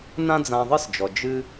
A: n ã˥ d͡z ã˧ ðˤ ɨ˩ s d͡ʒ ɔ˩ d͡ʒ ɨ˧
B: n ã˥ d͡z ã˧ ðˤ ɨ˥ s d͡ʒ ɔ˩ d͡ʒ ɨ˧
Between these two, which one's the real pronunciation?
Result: B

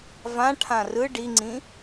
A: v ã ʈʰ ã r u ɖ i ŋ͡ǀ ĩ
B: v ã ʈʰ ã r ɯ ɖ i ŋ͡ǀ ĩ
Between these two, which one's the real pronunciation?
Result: B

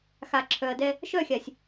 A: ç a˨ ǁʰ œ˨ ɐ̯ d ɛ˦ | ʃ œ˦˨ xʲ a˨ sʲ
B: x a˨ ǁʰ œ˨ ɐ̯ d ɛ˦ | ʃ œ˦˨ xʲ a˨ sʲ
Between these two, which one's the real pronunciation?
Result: B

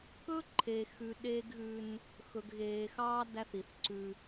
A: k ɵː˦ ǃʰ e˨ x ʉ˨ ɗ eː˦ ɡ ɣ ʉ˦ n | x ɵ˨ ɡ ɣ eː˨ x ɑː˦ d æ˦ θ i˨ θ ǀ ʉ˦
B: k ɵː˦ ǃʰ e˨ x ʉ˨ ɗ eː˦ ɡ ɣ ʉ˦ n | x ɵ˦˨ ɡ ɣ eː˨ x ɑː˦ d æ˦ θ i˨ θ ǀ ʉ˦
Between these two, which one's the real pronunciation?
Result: A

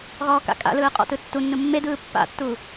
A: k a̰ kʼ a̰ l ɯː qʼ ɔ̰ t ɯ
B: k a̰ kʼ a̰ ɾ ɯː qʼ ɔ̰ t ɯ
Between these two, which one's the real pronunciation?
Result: A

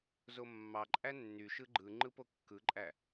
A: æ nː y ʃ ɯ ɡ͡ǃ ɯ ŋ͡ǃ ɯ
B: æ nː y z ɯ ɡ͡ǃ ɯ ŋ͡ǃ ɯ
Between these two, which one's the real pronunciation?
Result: A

